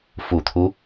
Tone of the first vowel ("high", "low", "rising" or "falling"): low